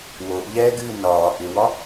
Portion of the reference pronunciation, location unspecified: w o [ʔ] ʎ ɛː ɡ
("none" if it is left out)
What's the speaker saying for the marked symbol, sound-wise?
ʔ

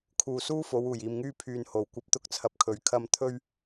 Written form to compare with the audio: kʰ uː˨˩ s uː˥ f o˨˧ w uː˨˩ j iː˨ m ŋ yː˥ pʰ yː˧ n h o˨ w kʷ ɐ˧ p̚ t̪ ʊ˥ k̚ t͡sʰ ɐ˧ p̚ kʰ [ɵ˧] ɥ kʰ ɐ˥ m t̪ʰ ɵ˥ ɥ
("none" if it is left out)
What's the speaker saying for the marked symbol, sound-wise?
ɵ˨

